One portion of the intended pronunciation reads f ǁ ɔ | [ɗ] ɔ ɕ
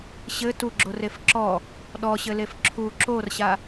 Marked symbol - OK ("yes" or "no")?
yes